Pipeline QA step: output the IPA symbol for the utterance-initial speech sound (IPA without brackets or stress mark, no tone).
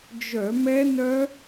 d͡ʒ